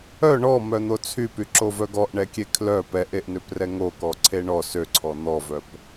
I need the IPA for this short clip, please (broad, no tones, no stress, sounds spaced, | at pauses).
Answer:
œ ɳ ɔ m œ n̪ o t͡sʰ y p y ǁ o v œ ɡ ɔ ʔ ɳ ɛ kʲ e kʰ l œ p ɛ ʔ e ʔ n ø p r ɛ ŋ o k ɔ ǀʰ e ɳ ɔ s ø ǀʰ ɔ n̪ ɔ v œ p